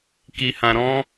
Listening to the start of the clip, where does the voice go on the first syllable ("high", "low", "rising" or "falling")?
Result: low